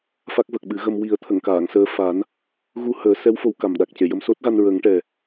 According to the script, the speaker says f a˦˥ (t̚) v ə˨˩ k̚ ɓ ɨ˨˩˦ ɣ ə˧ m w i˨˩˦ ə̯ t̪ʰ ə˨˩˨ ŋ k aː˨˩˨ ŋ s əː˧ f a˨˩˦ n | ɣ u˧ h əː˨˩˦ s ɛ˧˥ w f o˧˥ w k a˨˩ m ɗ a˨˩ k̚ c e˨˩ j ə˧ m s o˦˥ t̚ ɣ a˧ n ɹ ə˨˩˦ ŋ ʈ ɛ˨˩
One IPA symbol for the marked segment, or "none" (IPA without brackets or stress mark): k̚